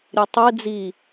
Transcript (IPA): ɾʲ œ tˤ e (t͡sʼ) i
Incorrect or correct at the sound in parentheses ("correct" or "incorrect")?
incorrect